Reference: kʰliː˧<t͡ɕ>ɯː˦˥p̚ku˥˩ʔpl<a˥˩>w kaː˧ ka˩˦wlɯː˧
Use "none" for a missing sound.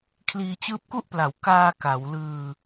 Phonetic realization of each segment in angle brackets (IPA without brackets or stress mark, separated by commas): t͡ɕ, a˩˦